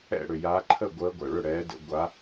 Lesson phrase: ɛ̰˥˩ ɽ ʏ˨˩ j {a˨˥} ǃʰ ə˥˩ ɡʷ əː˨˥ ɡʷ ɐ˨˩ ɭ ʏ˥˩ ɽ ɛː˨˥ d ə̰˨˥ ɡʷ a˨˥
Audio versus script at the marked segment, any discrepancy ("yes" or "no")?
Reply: no